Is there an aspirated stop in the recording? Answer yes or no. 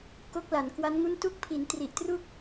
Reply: yes